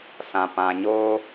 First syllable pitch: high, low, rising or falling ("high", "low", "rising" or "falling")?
low